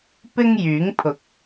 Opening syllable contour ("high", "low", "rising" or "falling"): high